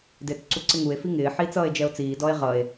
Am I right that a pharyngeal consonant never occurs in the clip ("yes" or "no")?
no